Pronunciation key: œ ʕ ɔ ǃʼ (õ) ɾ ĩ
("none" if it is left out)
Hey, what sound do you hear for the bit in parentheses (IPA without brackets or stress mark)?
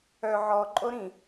o